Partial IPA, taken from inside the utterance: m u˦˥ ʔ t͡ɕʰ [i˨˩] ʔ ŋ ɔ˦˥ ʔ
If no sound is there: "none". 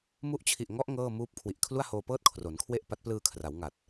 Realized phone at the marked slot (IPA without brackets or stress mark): i˨˩